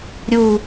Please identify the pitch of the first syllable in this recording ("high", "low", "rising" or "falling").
falling